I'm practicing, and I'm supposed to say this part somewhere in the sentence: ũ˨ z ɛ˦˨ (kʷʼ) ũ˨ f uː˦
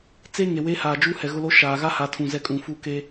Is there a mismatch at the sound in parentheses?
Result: yes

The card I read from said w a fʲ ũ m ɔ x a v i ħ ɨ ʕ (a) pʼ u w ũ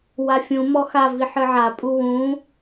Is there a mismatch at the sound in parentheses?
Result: no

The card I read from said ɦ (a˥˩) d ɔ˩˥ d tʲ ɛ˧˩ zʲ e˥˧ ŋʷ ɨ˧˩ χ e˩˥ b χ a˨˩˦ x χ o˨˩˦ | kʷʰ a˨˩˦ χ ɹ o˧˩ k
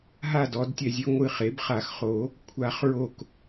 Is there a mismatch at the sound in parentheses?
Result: no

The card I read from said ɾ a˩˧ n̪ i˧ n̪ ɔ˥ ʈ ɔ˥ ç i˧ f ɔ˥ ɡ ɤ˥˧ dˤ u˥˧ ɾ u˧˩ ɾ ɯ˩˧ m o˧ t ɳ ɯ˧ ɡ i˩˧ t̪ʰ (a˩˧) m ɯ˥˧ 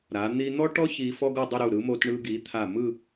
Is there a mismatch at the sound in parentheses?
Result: yes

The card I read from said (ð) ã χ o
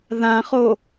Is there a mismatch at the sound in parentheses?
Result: no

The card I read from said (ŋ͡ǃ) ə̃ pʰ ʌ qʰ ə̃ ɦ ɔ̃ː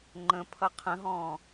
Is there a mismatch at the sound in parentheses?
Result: no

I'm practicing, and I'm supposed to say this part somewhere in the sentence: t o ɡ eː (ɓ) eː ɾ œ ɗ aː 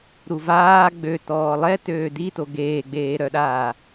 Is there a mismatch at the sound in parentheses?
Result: yes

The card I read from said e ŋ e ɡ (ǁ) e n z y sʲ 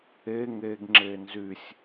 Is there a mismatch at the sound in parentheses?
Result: yes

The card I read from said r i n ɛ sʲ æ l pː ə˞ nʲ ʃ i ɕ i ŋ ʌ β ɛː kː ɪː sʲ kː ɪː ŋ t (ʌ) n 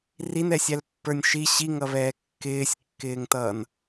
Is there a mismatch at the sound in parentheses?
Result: yes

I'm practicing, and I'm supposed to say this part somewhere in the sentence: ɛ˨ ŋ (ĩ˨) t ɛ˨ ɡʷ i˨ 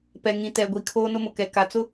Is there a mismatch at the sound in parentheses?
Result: no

